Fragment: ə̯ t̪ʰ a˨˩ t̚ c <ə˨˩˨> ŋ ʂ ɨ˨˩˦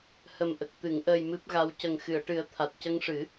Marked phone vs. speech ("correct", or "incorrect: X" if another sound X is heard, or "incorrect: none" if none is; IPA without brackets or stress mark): incorrect: ə˧